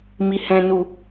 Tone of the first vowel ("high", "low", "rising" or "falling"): low